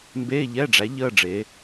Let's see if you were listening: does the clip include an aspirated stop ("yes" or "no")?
no